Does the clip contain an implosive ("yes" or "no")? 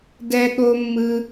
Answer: yes